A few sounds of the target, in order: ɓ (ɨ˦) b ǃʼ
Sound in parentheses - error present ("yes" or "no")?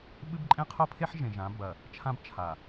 no